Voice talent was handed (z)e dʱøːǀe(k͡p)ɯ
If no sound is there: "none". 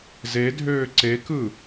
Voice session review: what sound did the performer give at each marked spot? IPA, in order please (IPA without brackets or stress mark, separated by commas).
z, k